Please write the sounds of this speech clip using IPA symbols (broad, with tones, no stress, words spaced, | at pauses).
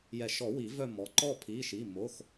jɛ˨˩˦ʃɔ˨˩˦ wi˨˩˦vœ˦˨ mɔ˩˥ ǃɔ˦˨ pʰi˩˧˩ʃi˩˧˩ mo˩˧˩x